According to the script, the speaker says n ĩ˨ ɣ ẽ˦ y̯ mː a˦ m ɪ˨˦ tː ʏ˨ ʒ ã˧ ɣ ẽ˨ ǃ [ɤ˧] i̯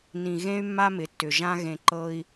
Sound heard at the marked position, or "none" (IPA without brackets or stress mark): ɤ˧